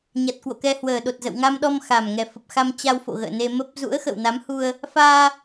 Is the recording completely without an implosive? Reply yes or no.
no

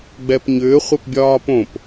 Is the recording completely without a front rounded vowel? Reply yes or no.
no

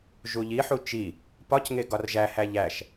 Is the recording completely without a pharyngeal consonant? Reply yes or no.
no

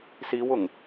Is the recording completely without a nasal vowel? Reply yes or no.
yes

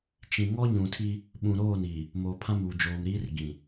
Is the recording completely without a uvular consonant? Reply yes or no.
yes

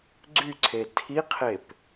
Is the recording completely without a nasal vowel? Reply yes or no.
yes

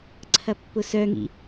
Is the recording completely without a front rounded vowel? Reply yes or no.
no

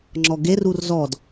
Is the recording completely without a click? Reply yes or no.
no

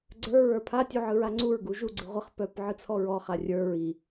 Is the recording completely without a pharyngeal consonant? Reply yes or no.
no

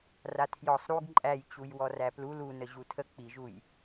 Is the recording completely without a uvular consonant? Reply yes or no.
yes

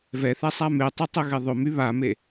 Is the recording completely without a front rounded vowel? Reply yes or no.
no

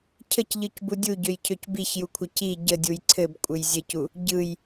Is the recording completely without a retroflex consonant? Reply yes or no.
yes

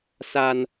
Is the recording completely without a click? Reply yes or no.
yes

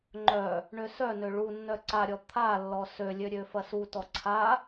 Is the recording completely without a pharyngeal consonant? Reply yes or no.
yes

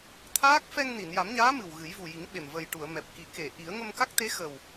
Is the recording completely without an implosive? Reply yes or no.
no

